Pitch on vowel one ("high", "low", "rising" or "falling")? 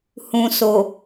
low